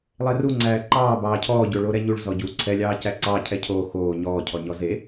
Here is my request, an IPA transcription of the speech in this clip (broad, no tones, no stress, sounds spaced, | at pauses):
lˠ e r u ŋ͡ǀ æː ǃ ɑː b ɑː cʰ ɔː ɟ o ɭ o ɾ ɛ ɲ u ɭ z ɔ ɟ u ǀʰ ɛ lʲ ɑː c æ ǀ ɑ cʰ ɛ cʰ oː x oː ɲ ɔː cʰ ɔ ɲ ɔ z e